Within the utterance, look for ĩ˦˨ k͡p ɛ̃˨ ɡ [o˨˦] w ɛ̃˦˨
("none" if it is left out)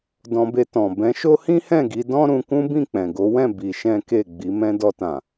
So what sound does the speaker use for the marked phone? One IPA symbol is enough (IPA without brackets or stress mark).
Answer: o˨˦